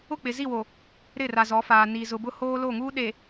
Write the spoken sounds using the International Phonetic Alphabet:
ʊ˦˨ k͡p ɪ˨ z i˦˨ w o˨ | ɾ ɪ˦˨ r a˨ z ɔ˨˦ f aː˨ n i˨ z ʊ˨ b ʊ˦ h oː˦ l o˦˨ ŋ uː˦ ɗ e˨

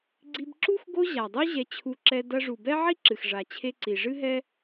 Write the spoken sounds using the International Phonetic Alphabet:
ɡ͡ǀ i˧ b ǁ u˦ x ɡ o˦ ʑ a˨ dˤ u˦ ʑ ɛ˧ t͡ɕʰ u˧ ǁ ɛ˧ d ɐ˧ ʐ u˨ b ɛ˦ ʕ i˦ ǁ ɨ˨ x ʐ a˨ t͡ɕʰ e˧ ǀ i˨ ʐ ɨ˦ ɦ ɛ˦

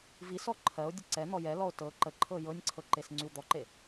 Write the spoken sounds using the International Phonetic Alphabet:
v i s ɔ ǃʰ ɜ o̯ dʲ ə ǀ ɛ n̪ ɔ j ɛ l ɔ o̯ t ɤ ǃ ə ǃʰ ɤ j ɤ nʲ ǀʰ ɤ ǃ e s ŋ͡ǀ y w d̪ ɔ ǃ e

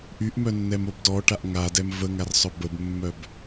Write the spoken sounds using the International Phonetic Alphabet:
ʔ y ʔ m œ nː ɛ m o b d ɔ ʈ a ʔ ŋ a d ɛ m v ə ŋ a r sˤ œ b ə b mː œ b

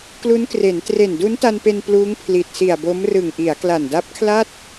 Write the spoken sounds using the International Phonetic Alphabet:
k l u˦˥ n k r e˩˦ n t r e˨˩ n d u˦˥ n t a˧ n p e˧ n p l uː˦˥ ŋ pʰ l i˨˩ t̚ s i˨˩ a̯ b o˦˥ m r ɯ˨˩ ŋ ʔ i˩˦ a̯ k l a˨˩ n d a˦˥ p̚ kʰ l a˥˩ t̚

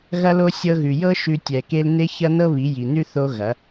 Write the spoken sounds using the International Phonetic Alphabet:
ɣ ɐ˧ l o˧ sʲ ɤ˧ ɣ ʉ˨ j ɤ˦ ʃ ʉ˧ tʲ ɛ˨ k e˧ l n e˦ ç ɐ˦ n ɤ˦ β i˨˦ j i˨ n ʉ˦ θ o˦ ɣ ɐ˨˦

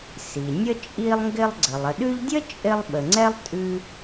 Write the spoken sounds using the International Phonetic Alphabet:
s i˩ nʲ ə˥ t͡ʃʼ i˦ lˠ ŋ ɡ ɪ˦ lˠ ɡ͡ǀ ə˩ lˠ ə˨ ɗ ʉ˦ ʎ dʲ ə˥ t͡ʃʼ ɪ˦ lˠ ɓ ə˨ ŋ͡ǀ ɛ˥ lˠ tʼ ʉ˦

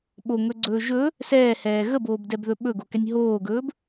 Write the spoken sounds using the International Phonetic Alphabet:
ɓ o ŋ ɵ ɡ͡ǀ ɵː ʒ ɵ | s ɛː h ɛː ɣ ə b oː b d ɛ b ð ɵ ɓ ɵ ɡ o k ɛ nʲ ɦ oː ɡ ɵː b

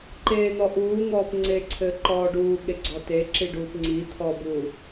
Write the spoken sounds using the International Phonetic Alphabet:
ǃ eː n̪ ɔ ʔ uː ŋ ɔː p ŋ͡ǀ eː ǀʰ ɘː ǃ ɔː ɖ uː ɠ e ɡ͡ǀ ɔ t e ǁ i ɖ uː p ŋ͡ǀ i t̪ʰ ɔ b uː

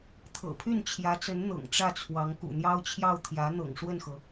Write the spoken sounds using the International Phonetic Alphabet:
t̪ʰ ɤ̰˨˩ pʰ y˥˩ n t͡ɕʰ j ä˧˥ t͡s ə˧˥ n n̪ ɤ̰˨˩ ŋ ʈ͡ʂ ä˥˩ t͡sʰ w ɑ˧˥ ŋ k ṵ˨˩ n̪ j ɑ˥ ʊ̯ t͡ɕʰ j ɑ˥˩ ʊ̯ t̪ʰ j ä˧˥ n̪ ɤ̰˨˩ ŋ ʂ w ə˥˩ n x ɤ˩

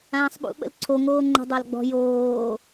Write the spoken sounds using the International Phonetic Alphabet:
ãː sˤ ɓ ṵ ɓ ə̰ l ǀʰ o ŋ oː ŋ͡ǃ ə̤ dˤ a l ɡ͡b ɔ̤ j oː

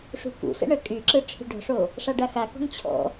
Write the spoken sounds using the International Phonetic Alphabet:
ʂ ṳ k ṵ s ə̰ ɳ ə kʼ y ǁ ɯ ʈ͡ʂʰ i̤ ɖ ɔ̤ ʂ o | ʂ a ɖ a x a k ɔ̤ ŋ t͡ɕʰ ɔ̰

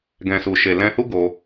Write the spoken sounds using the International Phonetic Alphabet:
ɡ ɛ̃˨ s u˨ ʃ e˨ l ɛ̃˧ h u˦ ɡ o˧

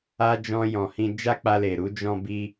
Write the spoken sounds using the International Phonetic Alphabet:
a˧ d͡ʒ ɔ̃˧ j ɔ̃˨ h ĩ˧ d͡ʒ a˦ k͡p a˧ l e˨ ɾ u˨˦ d͡ʒ ɔ̃˦ b i˦

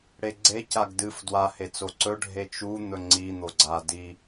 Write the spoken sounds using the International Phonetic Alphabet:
ɽ e ɡ͡ǀ e c a ɡ d ɨ f d w a h e t͡s o ǀ ɵ ɖʱ e t͡ʃ u n̪ ɵ ŋ͡ǀ i n̪ o ɡ͡ǀ a d i

